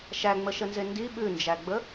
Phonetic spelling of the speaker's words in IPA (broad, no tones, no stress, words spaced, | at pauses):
ʃæŋ͡məʃənze ndi ɓʉnd͡ʒæɡ͡bə